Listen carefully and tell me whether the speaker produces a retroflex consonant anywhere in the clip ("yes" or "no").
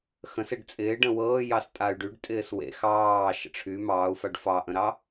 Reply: yes